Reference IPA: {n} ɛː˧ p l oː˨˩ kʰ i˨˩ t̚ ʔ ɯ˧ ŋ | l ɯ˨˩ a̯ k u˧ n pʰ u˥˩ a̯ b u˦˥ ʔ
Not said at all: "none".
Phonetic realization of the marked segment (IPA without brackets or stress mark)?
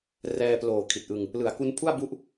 r